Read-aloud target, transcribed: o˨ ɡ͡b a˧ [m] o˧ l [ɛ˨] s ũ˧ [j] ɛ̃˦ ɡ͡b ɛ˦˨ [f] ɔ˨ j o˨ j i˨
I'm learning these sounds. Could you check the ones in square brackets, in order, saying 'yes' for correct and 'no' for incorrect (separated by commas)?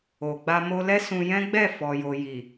yes, no, yes, yes